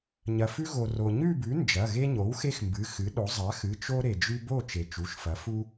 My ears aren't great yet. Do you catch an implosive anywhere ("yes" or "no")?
yes